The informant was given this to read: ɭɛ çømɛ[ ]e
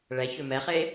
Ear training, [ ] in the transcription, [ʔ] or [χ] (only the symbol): χ